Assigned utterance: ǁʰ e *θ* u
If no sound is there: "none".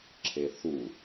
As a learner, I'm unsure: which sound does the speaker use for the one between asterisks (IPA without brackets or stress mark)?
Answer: θ